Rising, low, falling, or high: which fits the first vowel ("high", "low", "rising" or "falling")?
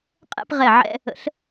falling